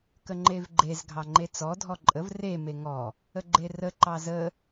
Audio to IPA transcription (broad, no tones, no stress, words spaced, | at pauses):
kəŋ͡ǃevɡ͡ǃez ɡʱɑŋ͡ǃet͡sɔ dʱɔǃʼəv re meŋɔ | əɡ͡ǃerə ǃɑzə